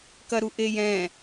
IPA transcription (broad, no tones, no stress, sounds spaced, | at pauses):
k ɐ ɾ u ʔ e j ɛ̃